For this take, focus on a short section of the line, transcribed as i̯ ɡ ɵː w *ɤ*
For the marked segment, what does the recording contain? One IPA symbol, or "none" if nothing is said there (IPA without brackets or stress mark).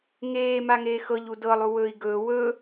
ɵ